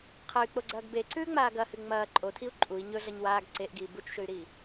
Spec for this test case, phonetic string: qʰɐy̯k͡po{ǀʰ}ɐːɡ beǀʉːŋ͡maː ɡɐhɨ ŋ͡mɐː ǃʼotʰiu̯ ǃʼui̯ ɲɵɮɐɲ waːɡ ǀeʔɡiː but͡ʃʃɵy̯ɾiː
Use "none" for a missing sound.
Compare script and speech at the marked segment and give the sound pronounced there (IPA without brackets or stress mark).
ɡ͡ǀ